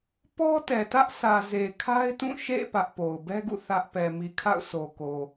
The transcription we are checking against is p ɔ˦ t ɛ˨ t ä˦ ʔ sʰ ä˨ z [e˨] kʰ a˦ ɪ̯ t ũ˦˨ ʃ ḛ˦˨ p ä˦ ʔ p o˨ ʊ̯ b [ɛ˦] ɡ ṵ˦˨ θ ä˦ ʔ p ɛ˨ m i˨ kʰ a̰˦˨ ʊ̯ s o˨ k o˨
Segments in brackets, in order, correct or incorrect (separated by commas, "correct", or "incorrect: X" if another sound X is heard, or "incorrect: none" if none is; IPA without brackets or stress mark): correct, correct